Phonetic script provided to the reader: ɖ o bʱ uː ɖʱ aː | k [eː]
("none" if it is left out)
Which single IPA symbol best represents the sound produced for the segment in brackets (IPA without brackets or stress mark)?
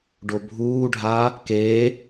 eː